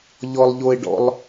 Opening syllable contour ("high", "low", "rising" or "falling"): low